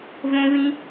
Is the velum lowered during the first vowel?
yes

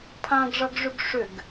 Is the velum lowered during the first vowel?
yes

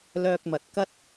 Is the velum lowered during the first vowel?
no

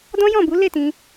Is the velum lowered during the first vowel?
yes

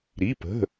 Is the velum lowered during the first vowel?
no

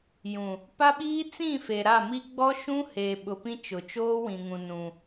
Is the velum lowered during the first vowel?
yes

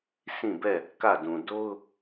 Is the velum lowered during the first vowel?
yes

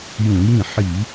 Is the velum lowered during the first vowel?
yes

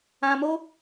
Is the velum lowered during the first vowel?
yes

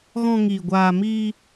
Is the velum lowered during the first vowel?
yes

